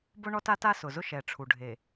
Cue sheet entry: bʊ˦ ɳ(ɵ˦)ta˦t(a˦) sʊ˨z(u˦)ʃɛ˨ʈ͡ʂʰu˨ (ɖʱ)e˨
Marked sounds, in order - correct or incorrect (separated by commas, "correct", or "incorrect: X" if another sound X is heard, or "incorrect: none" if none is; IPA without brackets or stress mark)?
incorrect: ɔ˦, correct, incorrect: ʊ˦, correct